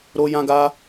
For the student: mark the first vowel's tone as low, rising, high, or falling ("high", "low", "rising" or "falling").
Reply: high